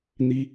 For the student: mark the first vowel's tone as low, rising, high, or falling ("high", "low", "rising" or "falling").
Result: high